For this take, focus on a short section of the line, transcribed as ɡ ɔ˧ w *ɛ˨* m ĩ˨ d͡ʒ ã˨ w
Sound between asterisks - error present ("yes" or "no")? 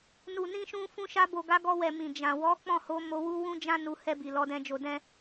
no